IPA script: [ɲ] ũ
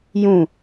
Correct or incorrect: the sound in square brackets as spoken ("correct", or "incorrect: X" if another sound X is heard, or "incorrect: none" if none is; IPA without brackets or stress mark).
incorrect: j